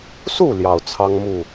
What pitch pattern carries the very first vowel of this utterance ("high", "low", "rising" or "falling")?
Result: falling